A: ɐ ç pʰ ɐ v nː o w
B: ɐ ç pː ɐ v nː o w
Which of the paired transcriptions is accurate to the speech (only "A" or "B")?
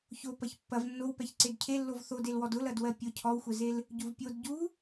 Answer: B